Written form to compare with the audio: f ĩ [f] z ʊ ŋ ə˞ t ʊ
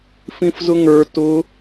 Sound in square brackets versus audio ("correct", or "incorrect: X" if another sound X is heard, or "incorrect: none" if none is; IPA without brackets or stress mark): correct